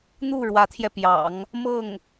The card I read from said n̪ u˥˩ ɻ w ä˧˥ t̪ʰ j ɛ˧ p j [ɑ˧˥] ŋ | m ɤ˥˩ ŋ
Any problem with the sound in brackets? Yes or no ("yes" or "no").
yes